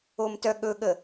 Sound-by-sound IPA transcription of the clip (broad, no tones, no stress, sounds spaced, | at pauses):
o m t œ ɠ ɵ ɠ ə